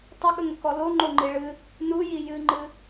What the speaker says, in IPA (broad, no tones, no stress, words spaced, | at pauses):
tˤəɠəŋəkɔ loŋ͡ǃoŋ͡ǃi ɭɨ | nuji jɨŋ͡ǃɨ